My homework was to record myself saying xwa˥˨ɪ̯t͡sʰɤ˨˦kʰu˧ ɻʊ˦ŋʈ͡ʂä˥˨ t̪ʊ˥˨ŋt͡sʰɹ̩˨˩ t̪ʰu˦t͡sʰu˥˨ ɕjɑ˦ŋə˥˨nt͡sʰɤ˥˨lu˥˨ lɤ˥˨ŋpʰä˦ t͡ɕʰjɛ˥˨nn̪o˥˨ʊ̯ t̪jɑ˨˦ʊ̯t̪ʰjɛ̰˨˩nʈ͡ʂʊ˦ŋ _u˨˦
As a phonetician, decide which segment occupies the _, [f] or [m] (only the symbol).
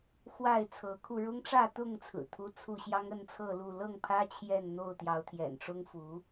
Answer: f